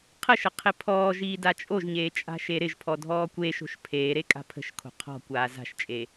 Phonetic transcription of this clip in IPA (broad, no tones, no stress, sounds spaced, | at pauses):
qʰ ə ʃ ə qʰ ɪ pʰ ɔː ʒ iː d a t͡ʃʼ o ʒ ɲ eː t͡ʃʼ a̤ ʃ e ɾ ɪ ʒ pʰ ɔ dʱ ɔː kʷ e ʃ o̤ ʃ pʰ eː ɾ e kʼ a̤ pʰ ə̤ ʃ kʰ o̤ qʰ ɔ̤ kʷ aː z a̤ ʃ t͡ʃʼ e